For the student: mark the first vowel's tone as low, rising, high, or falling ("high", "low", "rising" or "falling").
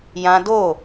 high